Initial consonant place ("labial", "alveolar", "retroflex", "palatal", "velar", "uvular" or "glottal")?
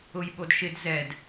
palatal